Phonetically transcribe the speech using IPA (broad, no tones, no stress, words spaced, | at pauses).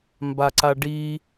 mbaǀaɖi